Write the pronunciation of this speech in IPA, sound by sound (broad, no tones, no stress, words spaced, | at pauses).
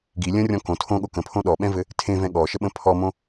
ɡi lʲə̃rʲɔ̃ kõ tʰõɠo kə̃pʰõ ɗɔɓɛ̃vɘ | tʰẽvɛ̃ ɠɔʃəɓə̃ pʰɔmõ